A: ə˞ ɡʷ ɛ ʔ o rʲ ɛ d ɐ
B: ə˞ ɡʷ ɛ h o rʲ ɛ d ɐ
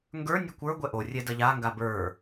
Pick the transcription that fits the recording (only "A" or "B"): A